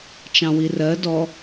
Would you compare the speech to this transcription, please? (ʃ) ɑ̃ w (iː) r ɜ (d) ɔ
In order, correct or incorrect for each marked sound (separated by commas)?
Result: incorrect, incorrect, correct